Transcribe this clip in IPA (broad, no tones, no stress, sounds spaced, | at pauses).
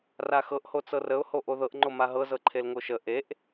r a x ɤ ʔ h o t͡s ɤ r ə ʊ̯ h o ʔ o ð ɤ ʔ ŋ͡ǃ o m a ɦ ɤ z ɤ ǃʰ e l ŋ o ʃ ə ʔ e ʔ